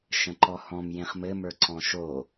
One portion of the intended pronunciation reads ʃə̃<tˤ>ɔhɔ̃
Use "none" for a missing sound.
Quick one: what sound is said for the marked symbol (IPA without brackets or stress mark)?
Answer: ǃ